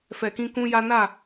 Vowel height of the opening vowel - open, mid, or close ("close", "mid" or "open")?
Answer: mid